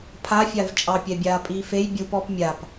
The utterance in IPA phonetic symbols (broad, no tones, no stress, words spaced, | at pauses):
pʰafʲav t͡ʃʼɑpʲɛbʲaː pʼiːfej bʲup ɔp mʲap